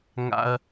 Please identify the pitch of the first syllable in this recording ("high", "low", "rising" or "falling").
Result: high